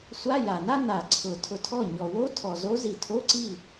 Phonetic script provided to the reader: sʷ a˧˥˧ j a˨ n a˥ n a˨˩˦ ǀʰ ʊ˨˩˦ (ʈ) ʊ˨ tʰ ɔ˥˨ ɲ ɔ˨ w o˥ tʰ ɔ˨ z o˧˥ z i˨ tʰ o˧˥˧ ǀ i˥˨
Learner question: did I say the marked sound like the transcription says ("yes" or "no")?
no